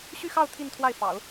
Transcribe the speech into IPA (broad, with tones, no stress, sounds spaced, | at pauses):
ɕ y˥˧ x ɑ˥˧ ʊ̯ t̪ʰ i˥˧ n t̪ʰ w a˥˩ ɪ̯ f ɑ̰˨˩˦ ʊ̯